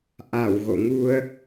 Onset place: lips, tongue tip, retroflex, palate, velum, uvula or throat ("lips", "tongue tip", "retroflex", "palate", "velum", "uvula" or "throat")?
throat